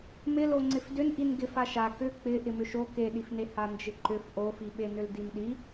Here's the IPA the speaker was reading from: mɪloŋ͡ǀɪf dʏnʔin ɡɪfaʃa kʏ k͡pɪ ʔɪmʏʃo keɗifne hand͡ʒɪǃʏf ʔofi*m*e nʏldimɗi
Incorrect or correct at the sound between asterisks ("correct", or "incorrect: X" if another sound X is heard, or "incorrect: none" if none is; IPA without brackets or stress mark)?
incorrect: ɓ